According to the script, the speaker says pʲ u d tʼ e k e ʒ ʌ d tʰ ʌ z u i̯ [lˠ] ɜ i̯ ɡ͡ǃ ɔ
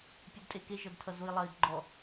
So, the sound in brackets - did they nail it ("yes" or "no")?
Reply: yes